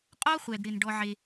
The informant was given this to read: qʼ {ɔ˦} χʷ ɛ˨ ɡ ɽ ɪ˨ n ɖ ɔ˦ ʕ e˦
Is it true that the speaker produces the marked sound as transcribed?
yes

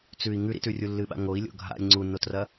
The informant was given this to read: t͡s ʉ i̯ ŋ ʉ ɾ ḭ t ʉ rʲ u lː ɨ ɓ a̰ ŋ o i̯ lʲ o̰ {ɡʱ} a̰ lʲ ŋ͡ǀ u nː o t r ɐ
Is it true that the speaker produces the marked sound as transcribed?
yes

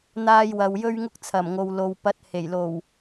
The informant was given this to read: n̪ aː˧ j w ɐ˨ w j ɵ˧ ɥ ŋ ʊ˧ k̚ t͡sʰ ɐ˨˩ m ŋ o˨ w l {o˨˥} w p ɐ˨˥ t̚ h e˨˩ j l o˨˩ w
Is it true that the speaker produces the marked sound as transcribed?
no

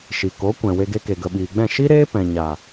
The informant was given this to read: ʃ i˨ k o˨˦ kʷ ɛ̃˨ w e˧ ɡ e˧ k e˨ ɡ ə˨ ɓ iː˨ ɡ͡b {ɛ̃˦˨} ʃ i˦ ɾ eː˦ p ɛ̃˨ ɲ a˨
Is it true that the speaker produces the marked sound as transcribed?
yes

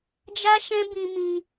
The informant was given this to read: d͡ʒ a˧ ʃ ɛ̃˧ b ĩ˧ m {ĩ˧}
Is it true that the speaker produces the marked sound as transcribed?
yes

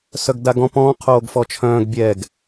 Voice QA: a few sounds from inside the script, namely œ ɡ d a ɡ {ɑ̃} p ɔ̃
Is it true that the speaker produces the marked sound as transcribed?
no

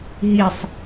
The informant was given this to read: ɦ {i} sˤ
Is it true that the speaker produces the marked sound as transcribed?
yes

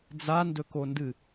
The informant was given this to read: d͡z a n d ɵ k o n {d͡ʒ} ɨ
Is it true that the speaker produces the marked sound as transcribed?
no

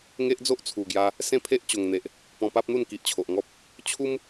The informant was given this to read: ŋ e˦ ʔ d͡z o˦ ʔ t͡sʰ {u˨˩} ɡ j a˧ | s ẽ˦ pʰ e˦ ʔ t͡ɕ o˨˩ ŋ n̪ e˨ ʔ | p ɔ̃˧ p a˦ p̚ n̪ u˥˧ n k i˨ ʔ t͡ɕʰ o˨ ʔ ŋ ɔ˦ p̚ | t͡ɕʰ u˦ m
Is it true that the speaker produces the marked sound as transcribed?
yes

